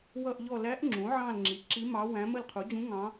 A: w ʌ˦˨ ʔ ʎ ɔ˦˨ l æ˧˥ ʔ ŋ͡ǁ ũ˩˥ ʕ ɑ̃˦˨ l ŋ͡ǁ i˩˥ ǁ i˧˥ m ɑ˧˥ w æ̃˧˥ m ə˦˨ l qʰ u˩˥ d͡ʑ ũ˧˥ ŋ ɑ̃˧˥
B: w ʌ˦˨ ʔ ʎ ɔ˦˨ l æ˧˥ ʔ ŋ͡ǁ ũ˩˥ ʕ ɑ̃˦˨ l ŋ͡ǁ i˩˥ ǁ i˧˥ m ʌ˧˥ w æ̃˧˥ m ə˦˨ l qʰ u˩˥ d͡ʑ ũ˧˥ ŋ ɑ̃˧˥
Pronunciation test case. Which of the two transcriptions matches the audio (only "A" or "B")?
A